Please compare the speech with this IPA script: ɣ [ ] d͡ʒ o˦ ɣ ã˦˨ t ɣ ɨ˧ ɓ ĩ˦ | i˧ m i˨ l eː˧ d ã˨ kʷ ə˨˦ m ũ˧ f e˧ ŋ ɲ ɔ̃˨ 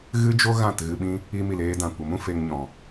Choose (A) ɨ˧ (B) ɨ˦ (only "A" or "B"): B